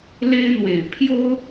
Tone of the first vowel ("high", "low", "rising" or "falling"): high